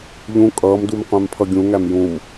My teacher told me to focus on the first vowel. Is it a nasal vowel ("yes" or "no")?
yes